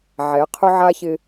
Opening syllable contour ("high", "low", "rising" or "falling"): rising